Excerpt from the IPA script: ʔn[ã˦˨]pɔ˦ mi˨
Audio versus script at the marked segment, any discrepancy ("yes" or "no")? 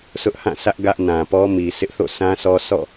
yes